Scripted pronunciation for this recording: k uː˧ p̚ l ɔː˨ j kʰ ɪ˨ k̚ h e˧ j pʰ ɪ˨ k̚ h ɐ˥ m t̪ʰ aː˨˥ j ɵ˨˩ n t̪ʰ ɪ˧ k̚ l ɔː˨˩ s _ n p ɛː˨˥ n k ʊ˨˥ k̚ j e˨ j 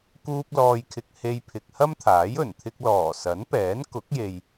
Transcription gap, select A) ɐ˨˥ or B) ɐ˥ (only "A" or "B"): A